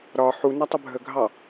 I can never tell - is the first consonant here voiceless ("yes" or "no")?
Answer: no